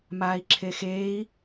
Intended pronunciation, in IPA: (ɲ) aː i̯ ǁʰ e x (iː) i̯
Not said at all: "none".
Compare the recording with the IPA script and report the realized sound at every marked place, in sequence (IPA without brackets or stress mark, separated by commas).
m, eː